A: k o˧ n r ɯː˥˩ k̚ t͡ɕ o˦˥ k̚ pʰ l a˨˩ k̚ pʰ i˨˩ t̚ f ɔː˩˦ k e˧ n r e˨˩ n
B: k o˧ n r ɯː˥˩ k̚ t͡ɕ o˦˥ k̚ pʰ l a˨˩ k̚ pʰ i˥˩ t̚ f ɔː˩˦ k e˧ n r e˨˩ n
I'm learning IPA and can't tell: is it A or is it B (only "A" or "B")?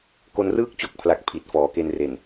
A